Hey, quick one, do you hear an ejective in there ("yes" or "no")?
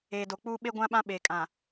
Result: yes